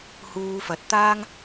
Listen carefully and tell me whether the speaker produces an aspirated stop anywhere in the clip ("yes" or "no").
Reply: no